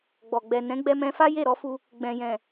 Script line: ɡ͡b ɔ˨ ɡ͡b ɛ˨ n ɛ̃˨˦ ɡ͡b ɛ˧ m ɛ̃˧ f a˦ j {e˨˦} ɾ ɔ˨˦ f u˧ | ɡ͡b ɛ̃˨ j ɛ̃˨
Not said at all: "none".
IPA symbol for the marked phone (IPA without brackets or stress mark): e˦˨